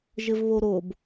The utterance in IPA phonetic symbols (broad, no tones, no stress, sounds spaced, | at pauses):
ʒ ɘ v β o ɾ o b